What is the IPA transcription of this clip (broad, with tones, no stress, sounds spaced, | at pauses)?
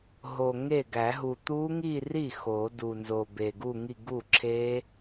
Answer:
ɦ o˨˩ ŋ e˥˩ ɡ æ˨˩˦ ɦ u˨˩ t̪ u˦˥ ŋ i˥˧ r i˥˩ x o˨˩˦ d u˨˩ n z o˨˩ b e˨˩ ɡ u˥˧ ŋ i˥˧ ɡ u˥˩ ǁʰ e˦˥